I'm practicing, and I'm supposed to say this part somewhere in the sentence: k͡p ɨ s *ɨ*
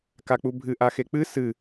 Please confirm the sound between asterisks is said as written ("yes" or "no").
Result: yes